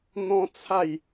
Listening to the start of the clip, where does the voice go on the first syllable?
high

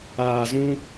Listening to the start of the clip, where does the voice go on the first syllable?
low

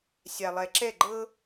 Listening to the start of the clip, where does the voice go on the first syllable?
low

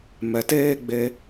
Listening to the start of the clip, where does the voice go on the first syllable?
low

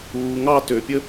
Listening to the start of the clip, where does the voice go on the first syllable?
low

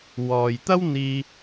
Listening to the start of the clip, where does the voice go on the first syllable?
low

